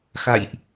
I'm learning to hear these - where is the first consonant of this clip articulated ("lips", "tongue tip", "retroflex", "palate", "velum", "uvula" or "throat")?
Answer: velum